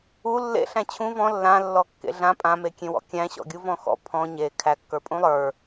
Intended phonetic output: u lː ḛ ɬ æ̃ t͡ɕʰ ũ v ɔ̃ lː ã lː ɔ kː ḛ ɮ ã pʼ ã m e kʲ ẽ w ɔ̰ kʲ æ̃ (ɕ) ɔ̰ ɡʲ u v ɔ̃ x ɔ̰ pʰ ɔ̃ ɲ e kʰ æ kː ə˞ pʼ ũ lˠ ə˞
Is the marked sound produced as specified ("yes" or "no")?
yes